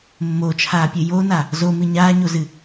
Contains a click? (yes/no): no